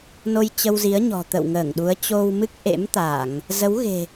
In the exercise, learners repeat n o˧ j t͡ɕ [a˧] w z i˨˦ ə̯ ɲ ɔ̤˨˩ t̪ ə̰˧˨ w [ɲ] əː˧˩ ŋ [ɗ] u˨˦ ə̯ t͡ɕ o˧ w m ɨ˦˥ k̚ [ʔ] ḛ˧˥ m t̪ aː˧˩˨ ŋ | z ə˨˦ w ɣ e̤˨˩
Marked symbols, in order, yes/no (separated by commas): no, no, yes, yes